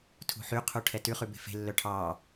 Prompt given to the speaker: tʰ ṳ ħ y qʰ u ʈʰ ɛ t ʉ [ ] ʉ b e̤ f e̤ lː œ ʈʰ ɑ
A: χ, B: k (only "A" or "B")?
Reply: A